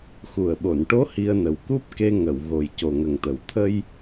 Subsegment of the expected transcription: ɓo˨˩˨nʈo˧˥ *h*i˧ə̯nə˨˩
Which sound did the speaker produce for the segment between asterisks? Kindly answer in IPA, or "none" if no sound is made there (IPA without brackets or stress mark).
h